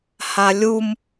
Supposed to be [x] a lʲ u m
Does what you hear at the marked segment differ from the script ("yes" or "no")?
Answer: yes